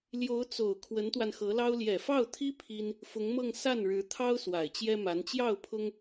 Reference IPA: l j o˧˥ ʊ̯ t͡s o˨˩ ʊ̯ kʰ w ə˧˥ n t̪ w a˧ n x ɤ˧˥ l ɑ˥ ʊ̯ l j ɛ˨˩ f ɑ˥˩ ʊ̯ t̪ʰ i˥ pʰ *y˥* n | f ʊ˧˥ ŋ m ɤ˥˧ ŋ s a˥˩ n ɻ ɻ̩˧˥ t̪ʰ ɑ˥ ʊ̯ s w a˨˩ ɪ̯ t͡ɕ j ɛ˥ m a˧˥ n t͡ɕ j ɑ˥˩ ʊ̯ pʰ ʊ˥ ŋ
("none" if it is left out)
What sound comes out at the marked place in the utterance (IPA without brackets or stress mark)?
i˥